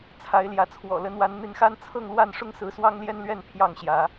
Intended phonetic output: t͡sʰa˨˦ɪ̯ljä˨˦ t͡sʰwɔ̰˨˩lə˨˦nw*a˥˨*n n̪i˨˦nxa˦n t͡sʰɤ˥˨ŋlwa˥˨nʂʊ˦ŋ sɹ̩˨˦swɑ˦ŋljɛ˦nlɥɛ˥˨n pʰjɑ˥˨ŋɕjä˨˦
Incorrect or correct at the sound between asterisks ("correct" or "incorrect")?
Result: incorrect